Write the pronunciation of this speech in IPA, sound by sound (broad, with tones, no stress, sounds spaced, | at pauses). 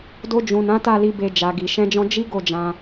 d o˧ d͡ʒ ũ˨ n ã˨˦ t a˦˨ l i˧ b e˧ d͡ʒ a˨ ɡ i˨ ʃ ɛ̃˧ d͡ʒ ɔ̃˧ d͡ʒ i˦ ɡ o˦˨ d͡ʒ ã˧